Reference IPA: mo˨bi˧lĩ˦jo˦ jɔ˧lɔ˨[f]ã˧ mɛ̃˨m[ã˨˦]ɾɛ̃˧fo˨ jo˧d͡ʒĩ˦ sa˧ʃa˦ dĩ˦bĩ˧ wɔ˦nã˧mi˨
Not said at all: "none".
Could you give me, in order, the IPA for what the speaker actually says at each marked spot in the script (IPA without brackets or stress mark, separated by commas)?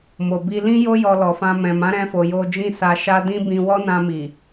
f, ã˨˦